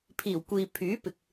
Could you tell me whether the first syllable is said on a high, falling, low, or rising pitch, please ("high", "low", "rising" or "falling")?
low